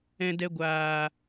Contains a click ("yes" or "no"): no